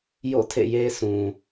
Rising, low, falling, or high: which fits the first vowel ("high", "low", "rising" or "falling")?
falling